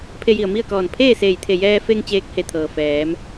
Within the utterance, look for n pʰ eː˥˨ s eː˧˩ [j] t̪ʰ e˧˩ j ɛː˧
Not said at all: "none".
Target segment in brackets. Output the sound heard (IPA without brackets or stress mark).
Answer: j